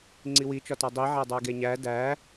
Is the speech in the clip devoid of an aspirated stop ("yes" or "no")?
yes